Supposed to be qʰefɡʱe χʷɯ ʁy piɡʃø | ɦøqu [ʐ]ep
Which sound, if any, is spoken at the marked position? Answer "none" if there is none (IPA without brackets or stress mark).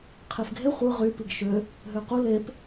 l